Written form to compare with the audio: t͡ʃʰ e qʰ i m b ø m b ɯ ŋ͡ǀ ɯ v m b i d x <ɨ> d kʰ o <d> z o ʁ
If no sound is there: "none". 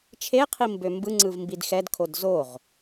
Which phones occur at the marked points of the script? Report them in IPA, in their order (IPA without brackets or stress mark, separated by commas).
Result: ɛ, d